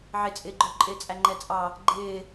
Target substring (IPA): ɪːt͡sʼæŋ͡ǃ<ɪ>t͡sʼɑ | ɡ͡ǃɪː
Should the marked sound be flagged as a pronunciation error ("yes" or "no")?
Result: yes